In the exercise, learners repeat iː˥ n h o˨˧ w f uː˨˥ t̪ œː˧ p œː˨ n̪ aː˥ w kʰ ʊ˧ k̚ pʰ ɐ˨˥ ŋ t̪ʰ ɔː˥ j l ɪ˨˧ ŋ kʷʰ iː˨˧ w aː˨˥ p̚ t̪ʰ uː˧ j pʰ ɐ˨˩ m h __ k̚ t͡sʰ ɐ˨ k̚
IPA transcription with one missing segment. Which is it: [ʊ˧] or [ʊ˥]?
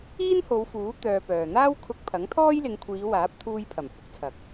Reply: ʊ˧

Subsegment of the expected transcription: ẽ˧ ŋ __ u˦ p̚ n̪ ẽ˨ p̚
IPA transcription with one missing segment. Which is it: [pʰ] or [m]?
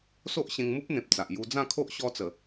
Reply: m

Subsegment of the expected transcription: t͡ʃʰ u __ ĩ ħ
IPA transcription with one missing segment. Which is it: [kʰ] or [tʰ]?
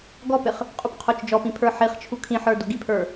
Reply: kʰ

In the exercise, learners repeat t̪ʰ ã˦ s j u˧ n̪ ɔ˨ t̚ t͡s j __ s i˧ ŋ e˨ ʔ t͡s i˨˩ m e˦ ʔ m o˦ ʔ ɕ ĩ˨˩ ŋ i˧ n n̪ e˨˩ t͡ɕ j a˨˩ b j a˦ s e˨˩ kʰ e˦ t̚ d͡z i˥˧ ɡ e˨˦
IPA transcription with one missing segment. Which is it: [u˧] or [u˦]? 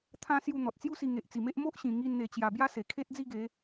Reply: u˦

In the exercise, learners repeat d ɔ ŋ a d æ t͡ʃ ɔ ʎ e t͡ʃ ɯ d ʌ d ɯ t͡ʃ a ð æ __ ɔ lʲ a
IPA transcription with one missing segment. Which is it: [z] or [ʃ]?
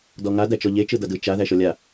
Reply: ʃ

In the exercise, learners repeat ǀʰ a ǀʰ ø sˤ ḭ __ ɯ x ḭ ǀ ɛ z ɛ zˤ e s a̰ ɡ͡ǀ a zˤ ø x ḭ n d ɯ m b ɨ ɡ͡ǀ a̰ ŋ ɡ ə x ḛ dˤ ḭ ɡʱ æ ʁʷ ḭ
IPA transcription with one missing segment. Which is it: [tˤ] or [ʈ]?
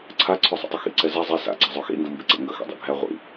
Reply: tˤ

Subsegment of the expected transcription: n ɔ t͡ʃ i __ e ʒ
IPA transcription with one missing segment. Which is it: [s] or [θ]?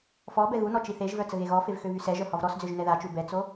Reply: θ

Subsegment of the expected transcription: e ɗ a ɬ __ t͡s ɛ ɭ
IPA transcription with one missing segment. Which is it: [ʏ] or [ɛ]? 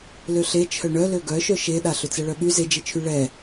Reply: ʏ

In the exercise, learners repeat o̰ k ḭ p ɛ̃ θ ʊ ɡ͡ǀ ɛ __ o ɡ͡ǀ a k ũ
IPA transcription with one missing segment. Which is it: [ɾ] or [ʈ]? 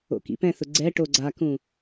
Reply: ʈ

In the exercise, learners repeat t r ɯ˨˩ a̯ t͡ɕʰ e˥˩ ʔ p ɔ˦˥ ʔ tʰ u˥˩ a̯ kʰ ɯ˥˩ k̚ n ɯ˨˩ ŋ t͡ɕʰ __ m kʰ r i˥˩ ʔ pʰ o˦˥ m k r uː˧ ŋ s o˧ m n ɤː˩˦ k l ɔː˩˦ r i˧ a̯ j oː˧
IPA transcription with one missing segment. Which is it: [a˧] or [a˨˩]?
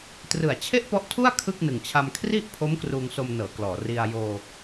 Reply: a˧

